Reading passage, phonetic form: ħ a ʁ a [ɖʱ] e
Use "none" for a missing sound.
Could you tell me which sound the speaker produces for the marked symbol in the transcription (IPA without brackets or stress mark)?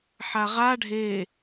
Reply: ɖʱ